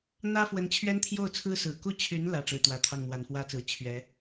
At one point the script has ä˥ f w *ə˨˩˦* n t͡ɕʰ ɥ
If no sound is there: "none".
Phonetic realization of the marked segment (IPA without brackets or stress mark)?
ə˧˥